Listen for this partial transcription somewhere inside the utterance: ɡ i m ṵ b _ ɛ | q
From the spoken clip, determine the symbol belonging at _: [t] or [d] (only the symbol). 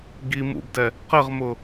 d